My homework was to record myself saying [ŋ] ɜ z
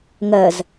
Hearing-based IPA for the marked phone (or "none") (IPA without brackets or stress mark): ŋ